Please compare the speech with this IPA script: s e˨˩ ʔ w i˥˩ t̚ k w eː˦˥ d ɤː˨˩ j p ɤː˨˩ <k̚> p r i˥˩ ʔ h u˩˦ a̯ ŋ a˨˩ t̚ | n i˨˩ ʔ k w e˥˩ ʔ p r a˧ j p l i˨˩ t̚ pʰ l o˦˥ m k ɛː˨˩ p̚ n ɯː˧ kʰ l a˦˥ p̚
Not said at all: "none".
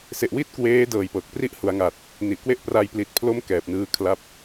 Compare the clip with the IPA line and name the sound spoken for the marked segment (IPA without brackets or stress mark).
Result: k̚